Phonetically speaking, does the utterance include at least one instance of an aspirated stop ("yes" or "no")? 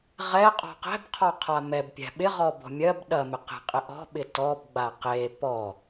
yes